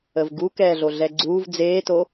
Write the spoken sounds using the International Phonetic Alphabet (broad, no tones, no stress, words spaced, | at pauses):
əvɡu kɛːɮoɮɛɡ͡ǀuːv d͡zeːto